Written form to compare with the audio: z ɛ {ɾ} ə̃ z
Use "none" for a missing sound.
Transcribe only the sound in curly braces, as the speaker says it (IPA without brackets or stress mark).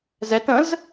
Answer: t